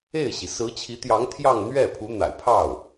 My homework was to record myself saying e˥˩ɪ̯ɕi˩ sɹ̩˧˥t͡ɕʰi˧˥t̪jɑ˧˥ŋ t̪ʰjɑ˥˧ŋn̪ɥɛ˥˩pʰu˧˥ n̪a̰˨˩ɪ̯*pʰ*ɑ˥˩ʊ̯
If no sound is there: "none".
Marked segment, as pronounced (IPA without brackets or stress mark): pʰ